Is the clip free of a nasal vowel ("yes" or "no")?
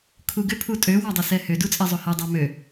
yes